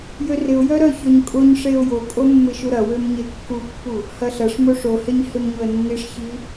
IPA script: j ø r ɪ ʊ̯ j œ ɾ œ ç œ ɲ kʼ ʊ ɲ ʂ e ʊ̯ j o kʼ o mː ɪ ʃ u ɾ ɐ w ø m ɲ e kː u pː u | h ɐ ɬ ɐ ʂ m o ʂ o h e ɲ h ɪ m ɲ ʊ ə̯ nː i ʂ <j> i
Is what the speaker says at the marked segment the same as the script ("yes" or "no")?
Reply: no